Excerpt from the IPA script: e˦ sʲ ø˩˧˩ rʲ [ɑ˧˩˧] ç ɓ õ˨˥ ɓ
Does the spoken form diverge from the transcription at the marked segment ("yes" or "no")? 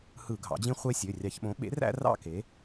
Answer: no